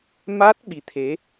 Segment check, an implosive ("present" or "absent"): present